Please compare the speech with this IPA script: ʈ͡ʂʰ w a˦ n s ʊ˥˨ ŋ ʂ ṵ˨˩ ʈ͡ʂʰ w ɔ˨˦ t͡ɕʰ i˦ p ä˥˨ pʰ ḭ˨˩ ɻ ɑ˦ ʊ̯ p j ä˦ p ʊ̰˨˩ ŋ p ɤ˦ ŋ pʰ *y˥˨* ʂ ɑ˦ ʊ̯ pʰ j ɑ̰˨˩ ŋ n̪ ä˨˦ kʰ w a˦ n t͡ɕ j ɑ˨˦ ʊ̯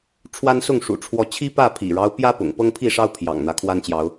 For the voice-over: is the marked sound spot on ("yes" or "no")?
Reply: no